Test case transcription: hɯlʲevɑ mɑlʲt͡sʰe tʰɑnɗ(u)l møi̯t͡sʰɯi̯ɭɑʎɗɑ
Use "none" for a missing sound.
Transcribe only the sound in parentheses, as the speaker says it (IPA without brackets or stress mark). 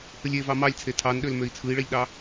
ø